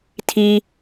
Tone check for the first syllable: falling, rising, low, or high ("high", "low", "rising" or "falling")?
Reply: high